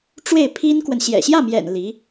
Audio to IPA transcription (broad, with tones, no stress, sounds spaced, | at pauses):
ʈ͡ʂ w e˥˩ ɪ̯ pʰ i˥ n k w ə˨ n ɕ j ɛ̰˨˩ ɕ j ä˥˩ m j ɛ̰˨˩ n l i˧˥